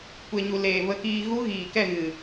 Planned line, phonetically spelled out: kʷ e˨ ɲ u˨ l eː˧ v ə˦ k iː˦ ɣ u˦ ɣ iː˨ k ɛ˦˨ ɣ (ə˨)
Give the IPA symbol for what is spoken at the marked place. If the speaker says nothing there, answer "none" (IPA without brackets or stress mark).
ɨ˨